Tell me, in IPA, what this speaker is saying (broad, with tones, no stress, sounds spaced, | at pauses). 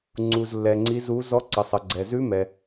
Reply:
ŋ͡ǀ u˨ z lː ɛ˨ ŋ͡ǀ i˦˥ z u˦˥ z ɔ˦˥ ǀ ʌ˨ sˤ ʌ˨ ɡ͡ǀ ɛ˨ z ʉ˦˥ m ɛ˨